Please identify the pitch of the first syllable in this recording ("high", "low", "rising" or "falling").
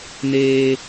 high